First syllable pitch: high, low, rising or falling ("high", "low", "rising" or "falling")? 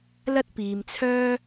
high